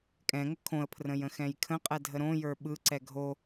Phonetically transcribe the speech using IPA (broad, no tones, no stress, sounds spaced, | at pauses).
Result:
kʼ ɛ̃ ŋ ə kʰ õ ə̯ pʰ r ə̃ j ə̃ x ɛ̃ j kʰ ə̃ qʼ ɛ dʱ ə ɾ õ j ə˞ ɓ ɯ ǀ ɛ ɡʱ o